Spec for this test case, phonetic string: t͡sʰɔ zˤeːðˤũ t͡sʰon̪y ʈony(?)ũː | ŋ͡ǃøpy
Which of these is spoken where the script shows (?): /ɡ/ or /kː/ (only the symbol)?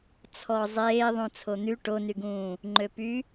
ɡ